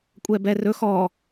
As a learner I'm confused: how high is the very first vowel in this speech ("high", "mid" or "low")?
mid